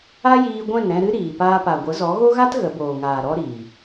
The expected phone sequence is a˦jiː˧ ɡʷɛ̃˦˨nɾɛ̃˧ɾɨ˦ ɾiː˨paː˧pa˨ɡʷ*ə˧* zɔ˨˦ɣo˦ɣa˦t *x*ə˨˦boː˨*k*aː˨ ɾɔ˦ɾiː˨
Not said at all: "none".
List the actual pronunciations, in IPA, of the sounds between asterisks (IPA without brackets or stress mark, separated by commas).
ə˨˦, ɣ, ŋ